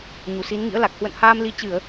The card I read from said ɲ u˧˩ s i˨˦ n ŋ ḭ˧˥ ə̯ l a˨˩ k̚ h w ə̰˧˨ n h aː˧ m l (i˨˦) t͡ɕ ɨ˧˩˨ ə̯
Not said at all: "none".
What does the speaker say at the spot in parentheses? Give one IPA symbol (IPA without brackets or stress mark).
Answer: i˨˦